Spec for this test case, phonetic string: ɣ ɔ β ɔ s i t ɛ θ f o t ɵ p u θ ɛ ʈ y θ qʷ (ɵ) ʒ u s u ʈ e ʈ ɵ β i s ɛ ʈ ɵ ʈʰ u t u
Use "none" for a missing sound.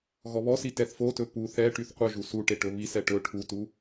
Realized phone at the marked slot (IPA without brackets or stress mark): œ